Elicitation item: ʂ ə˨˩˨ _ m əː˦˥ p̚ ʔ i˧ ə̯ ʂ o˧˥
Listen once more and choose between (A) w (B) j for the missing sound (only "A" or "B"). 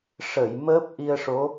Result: B